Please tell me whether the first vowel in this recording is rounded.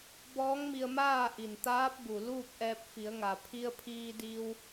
yes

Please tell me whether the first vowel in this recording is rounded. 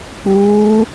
yes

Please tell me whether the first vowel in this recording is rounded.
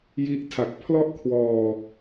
no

